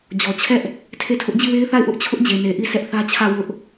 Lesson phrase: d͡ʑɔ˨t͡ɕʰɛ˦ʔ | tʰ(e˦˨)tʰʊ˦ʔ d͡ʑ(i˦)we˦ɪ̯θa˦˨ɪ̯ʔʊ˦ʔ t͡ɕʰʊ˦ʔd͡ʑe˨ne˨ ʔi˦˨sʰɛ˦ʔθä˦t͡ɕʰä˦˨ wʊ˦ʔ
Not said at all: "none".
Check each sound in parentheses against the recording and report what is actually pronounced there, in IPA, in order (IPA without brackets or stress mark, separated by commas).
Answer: e˦˨, i˦˨